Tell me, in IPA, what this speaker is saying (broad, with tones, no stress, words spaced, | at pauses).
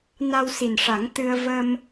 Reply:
na˧wsi˨˩nʂa˨˩˦ŋ t̪ɨ˧ə̯ və˧m